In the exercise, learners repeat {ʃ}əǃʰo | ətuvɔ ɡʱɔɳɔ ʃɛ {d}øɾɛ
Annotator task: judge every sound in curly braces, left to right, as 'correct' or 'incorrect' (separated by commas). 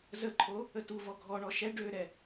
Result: incorrect, incorrect